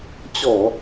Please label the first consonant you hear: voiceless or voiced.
voiceless